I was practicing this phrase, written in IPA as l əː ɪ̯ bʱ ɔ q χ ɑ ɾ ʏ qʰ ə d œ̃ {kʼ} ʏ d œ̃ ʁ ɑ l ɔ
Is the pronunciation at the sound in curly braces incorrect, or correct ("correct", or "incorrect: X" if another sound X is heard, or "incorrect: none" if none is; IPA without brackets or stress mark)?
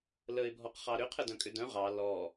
correct